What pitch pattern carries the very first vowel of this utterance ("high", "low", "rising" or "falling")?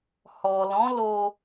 low